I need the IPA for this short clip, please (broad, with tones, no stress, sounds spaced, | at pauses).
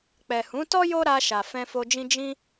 k͡p ɛ˨ h ũ˨˦ t ɔ˦ j o˦ ɾ a˧ ʃ a˨ f ɛ̃˧ f o˧ d͡ʒ ĩ˦ d͡ʒ ĩ˦